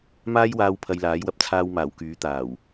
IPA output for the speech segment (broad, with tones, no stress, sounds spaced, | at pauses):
m aː˥ j w aː˧ w pʰ ɐ˧ j l aː˨˥ j w ɐ˧ p̚ t͡sʰ aː˧ w m aː˨˩ w k yː˨˥ t̪ aː˨˩ w